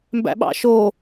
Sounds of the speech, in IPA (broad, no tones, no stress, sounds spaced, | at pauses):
m b æ̰ ɓ ɑ̰ ʃ o